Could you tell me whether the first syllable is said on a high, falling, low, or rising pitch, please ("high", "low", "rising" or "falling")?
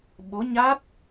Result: rising